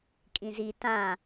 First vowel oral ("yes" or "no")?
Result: no